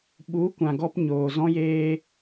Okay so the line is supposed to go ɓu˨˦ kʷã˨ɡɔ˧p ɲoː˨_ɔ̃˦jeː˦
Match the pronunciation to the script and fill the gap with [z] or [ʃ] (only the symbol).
z